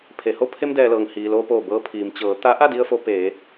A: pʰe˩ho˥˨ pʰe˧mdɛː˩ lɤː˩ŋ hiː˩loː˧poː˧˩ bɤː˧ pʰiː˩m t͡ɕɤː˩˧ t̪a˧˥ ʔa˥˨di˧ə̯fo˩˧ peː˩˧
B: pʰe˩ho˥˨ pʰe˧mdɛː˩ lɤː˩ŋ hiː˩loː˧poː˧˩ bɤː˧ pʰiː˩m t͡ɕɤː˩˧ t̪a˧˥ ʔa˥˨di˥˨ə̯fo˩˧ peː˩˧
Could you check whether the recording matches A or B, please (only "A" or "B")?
A